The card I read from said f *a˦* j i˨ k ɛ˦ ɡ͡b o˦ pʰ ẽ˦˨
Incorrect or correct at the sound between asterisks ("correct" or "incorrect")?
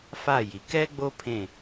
incorrect